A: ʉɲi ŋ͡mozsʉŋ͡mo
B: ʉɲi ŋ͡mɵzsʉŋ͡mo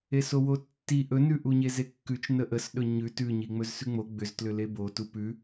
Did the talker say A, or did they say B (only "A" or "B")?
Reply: B